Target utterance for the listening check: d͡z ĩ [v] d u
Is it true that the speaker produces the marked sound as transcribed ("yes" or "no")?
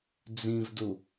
yes